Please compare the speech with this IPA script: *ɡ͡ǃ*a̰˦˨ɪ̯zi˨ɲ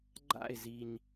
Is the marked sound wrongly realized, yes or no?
no